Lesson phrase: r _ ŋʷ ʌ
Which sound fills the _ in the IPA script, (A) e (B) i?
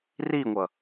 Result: B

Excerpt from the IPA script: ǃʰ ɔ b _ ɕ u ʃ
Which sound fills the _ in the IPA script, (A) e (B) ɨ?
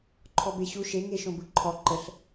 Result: A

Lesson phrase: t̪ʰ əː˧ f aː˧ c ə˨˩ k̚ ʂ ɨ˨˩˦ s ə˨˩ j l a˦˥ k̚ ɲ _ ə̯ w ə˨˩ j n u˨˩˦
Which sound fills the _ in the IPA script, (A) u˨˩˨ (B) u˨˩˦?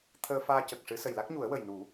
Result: B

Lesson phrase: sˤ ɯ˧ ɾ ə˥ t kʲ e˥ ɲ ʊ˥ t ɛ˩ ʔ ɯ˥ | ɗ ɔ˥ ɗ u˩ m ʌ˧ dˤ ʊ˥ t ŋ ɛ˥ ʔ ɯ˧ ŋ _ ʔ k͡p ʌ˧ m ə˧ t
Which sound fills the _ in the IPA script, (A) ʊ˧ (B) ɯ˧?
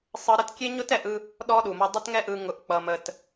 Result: A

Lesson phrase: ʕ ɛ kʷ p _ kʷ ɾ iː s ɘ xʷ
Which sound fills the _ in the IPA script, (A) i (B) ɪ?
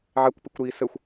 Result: A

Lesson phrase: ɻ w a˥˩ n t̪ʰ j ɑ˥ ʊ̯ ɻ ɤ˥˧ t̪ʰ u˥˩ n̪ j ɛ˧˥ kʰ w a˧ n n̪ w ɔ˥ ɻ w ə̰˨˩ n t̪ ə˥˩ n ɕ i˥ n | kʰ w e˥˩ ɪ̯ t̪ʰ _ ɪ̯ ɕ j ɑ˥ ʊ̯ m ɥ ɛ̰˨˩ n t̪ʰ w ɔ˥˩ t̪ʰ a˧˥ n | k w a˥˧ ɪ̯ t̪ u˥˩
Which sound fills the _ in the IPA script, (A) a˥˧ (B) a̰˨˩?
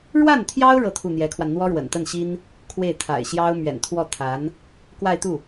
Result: B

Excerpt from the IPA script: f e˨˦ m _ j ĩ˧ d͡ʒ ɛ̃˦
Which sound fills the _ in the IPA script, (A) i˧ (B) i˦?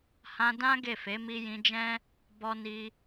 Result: A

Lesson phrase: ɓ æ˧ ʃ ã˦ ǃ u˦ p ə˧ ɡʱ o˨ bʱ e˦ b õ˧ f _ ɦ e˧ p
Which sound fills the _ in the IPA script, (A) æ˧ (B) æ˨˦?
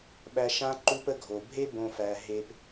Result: A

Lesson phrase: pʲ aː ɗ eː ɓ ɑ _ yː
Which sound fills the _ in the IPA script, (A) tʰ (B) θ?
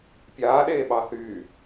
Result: B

